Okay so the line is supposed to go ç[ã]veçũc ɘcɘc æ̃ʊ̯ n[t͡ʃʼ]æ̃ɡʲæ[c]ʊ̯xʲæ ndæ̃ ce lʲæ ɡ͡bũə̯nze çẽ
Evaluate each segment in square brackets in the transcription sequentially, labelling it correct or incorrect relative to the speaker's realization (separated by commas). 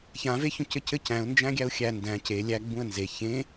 correct, incorrect, incorrect